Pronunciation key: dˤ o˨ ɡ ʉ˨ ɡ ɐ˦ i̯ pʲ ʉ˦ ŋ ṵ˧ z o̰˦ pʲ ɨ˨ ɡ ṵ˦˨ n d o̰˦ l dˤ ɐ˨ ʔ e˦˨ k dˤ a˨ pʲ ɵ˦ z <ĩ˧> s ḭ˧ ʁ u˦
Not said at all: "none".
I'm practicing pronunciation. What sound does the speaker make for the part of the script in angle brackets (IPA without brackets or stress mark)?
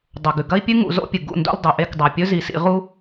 i˧